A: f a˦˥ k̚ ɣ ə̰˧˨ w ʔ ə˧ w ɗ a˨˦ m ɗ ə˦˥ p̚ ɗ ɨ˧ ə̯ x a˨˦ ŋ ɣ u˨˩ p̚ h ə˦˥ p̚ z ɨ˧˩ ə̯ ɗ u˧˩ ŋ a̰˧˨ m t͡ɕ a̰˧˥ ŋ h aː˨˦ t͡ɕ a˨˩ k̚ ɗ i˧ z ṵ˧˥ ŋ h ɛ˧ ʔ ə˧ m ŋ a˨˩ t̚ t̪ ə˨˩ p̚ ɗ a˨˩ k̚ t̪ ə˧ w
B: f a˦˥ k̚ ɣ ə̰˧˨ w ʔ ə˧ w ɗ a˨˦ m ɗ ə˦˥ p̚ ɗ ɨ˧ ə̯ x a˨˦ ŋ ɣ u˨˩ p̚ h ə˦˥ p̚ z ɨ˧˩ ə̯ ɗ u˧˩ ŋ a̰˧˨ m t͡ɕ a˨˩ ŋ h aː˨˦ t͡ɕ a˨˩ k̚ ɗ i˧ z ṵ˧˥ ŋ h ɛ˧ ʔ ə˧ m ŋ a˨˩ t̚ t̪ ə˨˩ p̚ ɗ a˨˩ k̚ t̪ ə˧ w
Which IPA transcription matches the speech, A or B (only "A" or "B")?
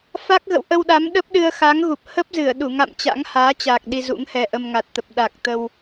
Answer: A